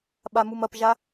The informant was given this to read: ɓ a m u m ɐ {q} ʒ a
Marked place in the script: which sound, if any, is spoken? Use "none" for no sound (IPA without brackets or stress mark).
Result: p